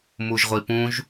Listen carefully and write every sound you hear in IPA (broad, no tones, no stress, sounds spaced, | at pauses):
m u ʒ ʁʷ i p ũ ʒ